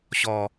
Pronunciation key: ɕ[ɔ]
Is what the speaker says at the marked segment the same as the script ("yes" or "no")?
yes